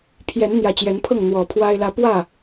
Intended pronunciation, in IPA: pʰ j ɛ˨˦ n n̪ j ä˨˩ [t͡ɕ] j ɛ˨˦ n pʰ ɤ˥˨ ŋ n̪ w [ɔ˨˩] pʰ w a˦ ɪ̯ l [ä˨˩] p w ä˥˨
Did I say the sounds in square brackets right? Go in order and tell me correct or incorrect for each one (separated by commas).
correct, correct, incorrect